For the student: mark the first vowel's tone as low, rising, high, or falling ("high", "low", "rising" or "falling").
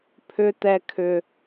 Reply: high